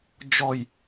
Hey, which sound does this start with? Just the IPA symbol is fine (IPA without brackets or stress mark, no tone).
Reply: d͡ʒ